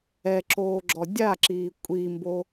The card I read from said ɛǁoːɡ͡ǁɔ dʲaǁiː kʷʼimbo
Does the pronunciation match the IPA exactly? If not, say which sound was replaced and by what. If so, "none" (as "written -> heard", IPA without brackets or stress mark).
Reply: none